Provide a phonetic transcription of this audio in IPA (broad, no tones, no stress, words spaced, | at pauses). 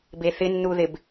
beθɪnːuðɪb